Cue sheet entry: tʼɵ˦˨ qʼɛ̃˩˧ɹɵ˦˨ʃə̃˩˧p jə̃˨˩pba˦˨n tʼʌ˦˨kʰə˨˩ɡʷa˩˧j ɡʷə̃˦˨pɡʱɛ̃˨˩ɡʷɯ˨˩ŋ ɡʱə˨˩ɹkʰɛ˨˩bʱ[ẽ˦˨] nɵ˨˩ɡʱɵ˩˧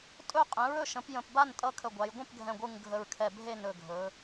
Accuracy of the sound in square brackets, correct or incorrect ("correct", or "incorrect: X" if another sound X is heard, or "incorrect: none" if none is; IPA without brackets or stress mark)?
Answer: incorrect: e˦˨